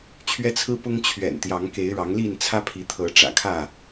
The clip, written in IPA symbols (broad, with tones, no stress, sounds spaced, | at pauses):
t͡ɕʰ ɥ ɛ˦ t͡sʰ ɹ̩˦ p ʊ˦ ŋ t͡ɕʰ ɥ ɛ̰˨˩ n t̪ j ɑ˨˦ ŋ k e˨˦ ɪ̯ ɻ ɑ˨˦ ŋ l i˥˨ n t͡sʰ ä˦ pʰ i˨˦ t̪ʰ ɤ˨˦ ʈ͡ʂ ä̰˨˩ kʰ ä˥˨